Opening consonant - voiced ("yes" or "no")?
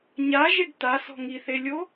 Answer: yes